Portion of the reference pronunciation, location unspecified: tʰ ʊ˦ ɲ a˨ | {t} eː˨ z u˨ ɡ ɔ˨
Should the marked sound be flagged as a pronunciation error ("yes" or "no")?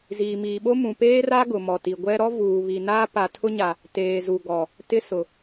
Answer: no